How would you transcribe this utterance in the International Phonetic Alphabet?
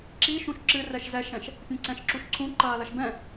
ǁiʃũʃ ǁɨ rɛʃzɛʃɛ̃ʃ | pʲẽǀɛ̃ʃǁuʃǀʰũ ǃɐːlɐʃbɛ̃

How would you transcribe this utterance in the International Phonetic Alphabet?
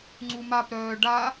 ŋ͡ǀumapɾœː ɖa

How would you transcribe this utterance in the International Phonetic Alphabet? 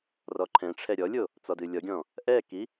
rɔǃʰɛ̃ʈ͡ʂʰɛ ɾʲɔlʲo | t͡sɔdɨlʲɔɡʲɔ̃ | ʔɛki

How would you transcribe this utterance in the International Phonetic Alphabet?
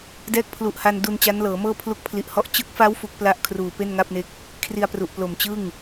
dɛː˦˥k̚pʰlu˨˩ʔha˧n du˧nt͡ɕa˦˥nlɤː˩˦mɤː˥˩ pʰlu˦˥k̚pʰli˨˩ʔhɔ˥˩ʔ t͡ɕɯ˦˥k̚fa˦˥w fu˦˥k̚pla˥˩ʔkʰruː˨˩ pe˥˩nŋa˥˩p̚ne˦˥k̚ | kʰri˧a̯pru˨˩ʔplo˨˩mt͡ɕɯ˥˩ŋ

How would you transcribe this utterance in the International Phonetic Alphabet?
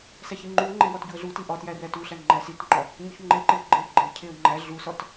sæçiŋ͡ǃuŋ͡ǃe wɒtɟuə̯ɮuti ʔɒtjæ rætuɬæ ŋ͡ǃæsitŋ͡ǃɒ | ɲoçŋ͡ǃeǃeə̯ ɡ͡ǃe ɡ͡ǃecʰeə̯ ŋ͡ǃæ ɮusɒt

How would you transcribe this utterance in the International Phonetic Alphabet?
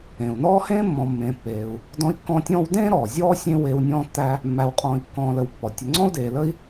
ẽː˩u̯nɔː˥ hẽː˥mːɔ̃˨ mːẽː˨pːeː˨u̯ | dɔ̃˦i̯kːɔ̃ː˦tʲɔ̃ː˥w dẽː˥ ɾɔː˩zʲɔː˥sʲẽ˦ weː˦wnʲɔ̃ː˥tːæ˥ | mːæ˨wqʼɔ̃ː˨i̯kːɔ̃ː˨lə˨w pːɔ˩ tʲə˨ŋ͡ǀɔ̃˥u̯deː˨lə˥i̯

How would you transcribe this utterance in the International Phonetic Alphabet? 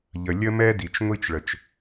ʎə˩ lʲə˥mɛ˥di˩t͡ʃ ŋʷi˥t͡ʃɭə˩t͡ʃ

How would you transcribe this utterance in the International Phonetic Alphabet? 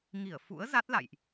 ŋi˧˩ə̯ fṵ˧˥ə̯ za˦˥t̚la̰˧˨jʔ

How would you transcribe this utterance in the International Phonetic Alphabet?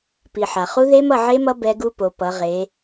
pi˩ ħa˩χu˦˥ ðe˦˥mʌ˥˨ʕe˦˥mʌ˦˥ bɛ˦˥ɡu˦˥po˩˧ pʌ˩˧ʁe˩˧

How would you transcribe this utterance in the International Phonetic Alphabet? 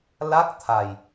la˦˥k̚t̪ʰa˨˩j

